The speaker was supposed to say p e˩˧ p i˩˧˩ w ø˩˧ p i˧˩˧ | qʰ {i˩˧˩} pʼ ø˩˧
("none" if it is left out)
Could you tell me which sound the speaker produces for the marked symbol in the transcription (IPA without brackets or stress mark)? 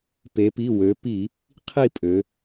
i˥˨